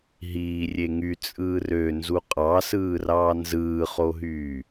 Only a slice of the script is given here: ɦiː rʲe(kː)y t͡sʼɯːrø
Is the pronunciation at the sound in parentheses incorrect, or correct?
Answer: incorrect